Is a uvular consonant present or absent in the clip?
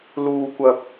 absent